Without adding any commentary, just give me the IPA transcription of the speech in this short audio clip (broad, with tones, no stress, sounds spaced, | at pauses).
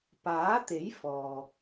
p aː˨˥ t̪ e˨˥ j f ɔː˨